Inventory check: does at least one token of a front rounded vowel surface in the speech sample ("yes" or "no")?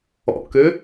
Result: yes